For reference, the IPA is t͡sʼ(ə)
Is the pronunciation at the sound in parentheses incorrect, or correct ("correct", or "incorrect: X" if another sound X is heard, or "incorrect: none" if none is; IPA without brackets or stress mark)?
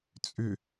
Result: incorrect: ʏ